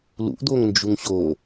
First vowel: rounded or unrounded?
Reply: rounded